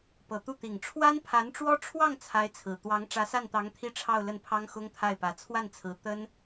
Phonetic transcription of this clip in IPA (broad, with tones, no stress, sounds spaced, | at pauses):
p ɤ˨˩ t̪ u˥˩ t̪ i˨˩ ŋ ʈ͡ʂʰ w a˥ n pʰ a˧˥ n ʈ͡ʂ w ɔ˥ ʈ͡ʂʰ w ɑ˥˩ ŋ t͡sʰ a˧˥ ɪ̯ t͡sʰ ɹ̩˨˩ t̪ w ɑ˧˥ ŋ ʈ͡ʂ ä˧˥ s a˥˩ n t̪ ɑ˧˥ ŋ t̪ʰ i˥˧ ʈ͡ʂʰ ɑ˥˧ ʊ̯ l ə˥˩ n pʰ ɑ˥ ŋ x ʊ˥ ŋ t̪ʰ a˥˩ ɪ̯ p ä˧˥ t͡sʰ w a˥˩ n t͡sʰ ɹ̩˧˥ t̪ ə˥ n